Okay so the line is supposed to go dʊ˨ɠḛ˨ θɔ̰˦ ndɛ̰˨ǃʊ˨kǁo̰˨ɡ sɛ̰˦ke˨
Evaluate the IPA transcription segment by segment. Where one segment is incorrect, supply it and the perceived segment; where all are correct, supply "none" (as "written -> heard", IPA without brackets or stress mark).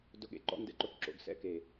θ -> ǃ